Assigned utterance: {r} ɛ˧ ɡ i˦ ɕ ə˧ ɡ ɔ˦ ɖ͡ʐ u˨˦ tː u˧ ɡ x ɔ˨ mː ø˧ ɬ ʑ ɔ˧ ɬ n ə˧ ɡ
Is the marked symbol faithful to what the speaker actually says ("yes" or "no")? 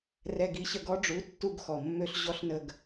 yes